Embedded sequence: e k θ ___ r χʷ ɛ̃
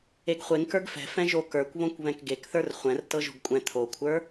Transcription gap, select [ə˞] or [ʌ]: ə˞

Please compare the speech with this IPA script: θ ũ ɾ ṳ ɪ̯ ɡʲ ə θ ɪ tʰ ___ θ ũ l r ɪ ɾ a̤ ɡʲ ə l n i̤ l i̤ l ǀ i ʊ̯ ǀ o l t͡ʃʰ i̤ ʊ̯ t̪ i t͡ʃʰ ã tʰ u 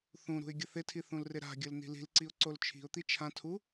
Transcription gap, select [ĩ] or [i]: i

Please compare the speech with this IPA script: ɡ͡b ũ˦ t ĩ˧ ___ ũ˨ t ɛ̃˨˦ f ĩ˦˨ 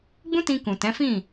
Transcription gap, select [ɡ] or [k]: k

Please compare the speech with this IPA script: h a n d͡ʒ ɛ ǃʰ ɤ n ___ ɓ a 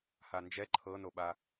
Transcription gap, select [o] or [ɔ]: o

